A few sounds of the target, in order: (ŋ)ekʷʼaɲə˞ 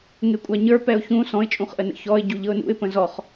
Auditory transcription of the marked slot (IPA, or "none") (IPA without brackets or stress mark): ŋ